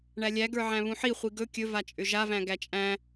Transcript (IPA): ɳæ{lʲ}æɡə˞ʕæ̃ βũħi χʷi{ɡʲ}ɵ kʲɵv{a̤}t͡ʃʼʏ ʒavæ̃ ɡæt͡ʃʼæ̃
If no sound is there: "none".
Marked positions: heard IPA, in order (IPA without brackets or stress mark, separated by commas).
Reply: lʲ, ɡ, a